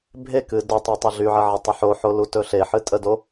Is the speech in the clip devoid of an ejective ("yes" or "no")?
no